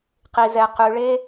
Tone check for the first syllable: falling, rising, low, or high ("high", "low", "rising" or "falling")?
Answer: low